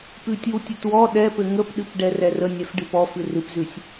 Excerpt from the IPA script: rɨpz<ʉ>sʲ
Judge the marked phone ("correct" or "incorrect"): correct